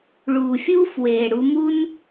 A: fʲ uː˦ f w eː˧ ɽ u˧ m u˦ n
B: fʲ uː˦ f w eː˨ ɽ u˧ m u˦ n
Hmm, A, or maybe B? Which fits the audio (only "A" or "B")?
B